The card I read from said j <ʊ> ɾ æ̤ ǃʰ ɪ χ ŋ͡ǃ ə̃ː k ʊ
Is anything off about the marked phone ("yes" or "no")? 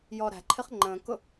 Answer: yes